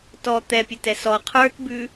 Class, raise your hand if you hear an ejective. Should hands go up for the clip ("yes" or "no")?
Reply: no